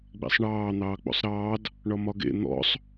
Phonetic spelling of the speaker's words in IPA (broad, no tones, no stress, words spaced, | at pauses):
ɡ͡bḛsˤɳɑː n̪ɑːk͡po̰sˤɾɑːd | ɳɒmɒɡḛ n̪ɔ̰sˤ